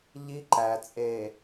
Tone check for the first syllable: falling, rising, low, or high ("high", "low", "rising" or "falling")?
high